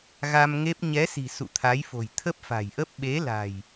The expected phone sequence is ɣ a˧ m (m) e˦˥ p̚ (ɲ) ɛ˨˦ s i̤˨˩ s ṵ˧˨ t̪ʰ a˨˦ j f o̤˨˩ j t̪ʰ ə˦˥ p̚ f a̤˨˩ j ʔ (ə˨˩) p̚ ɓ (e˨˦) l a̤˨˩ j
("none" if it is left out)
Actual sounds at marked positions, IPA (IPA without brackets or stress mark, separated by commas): ŋ, ɲ, ə˦˥, e˨˦